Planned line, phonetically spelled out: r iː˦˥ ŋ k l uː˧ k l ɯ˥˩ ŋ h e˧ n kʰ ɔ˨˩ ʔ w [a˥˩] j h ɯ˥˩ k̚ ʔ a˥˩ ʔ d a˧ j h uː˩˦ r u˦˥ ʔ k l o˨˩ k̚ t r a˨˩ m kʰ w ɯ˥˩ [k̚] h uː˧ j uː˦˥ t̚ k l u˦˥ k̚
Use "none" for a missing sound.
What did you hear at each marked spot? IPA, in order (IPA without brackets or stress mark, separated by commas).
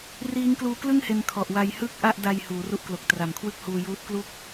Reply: a˧, k̚